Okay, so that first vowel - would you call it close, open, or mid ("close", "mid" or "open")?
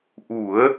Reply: close